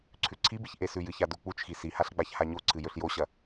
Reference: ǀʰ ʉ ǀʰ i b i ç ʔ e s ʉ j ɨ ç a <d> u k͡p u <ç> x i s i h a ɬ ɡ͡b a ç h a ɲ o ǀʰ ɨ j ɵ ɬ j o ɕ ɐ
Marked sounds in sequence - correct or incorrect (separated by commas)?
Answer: correct, incorrect